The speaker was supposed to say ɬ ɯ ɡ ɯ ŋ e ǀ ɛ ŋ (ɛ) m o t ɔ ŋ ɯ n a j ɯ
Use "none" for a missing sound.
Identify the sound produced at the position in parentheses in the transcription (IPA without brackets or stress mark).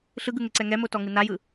ɛ